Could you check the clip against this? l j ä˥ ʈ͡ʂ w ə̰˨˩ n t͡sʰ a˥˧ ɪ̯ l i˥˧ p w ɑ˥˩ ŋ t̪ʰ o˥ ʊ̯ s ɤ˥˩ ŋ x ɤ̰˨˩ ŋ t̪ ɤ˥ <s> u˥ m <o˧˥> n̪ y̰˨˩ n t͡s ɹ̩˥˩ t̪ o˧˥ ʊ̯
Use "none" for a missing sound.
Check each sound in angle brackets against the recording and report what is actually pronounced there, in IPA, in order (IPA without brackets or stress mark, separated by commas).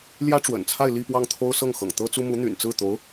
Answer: t͡s, u˧˥